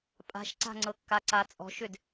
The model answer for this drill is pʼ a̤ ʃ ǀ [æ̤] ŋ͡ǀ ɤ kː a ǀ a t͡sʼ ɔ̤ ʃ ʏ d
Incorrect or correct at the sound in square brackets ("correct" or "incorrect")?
incorrect